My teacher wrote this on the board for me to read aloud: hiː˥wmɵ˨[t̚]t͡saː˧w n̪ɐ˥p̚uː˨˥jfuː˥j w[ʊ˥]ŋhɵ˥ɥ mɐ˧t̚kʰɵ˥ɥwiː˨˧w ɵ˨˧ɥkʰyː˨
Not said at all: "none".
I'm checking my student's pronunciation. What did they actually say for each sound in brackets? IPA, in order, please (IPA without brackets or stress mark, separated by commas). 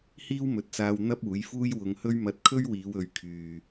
t̚, ʊ˨˧